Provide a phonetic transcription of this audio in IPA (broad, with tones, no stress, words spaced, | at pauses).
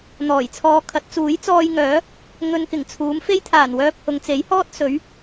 n̪ɔː˨˩jt͡sʰɔː˧kʰɐ˨˥t̚ t͡suː˨˥jt͡sɔː˧jŋœː˨˥ | ŋɵ˧nkɪ˨˩ŋt͡sʰuː˨˥m fe˥jt̪ʰaː˨˩nwœː˧p̚ hʊ˨ŋt͡se˨˥jhɔː˥t̚sɵ˨˥ɥ